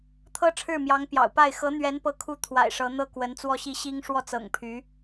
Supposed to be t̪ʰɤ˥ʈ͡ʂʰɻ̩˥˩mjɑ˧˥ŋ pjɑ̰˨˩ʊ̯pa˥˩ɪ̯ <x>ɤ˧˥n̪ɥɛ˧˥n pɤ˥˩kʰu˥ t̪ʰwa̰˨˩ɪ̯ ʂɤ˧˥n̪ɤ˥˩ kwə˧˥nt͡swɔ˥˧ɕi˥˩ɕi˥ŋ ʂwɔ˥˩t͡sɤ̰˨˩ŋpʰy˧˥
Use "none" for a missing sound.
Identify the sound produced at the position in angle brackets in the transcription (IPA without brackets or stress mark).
x